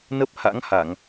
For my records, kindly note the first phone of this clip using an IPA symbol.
n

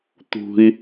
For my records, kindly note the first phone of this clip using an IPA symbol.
t̪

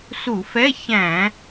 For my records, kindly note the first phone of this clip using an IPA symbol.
s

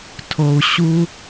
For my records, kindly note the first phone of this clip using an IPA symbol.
tʰ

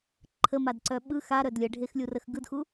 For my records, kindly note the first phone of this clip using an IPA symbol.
ǃʰ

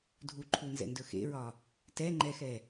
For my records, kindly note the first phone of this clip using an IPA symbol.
dʱ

